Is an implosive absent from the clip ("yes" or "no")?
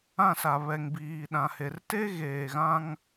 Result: no